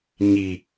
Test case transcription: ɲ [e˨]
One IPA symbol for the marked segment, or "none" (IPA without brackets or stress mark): i˨